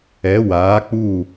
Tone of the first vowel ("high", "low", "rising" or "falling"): rising